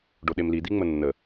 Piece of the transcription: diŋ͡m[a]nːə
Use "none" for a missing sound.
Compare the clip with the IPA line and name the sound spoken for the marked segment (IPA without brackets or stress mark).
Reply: ə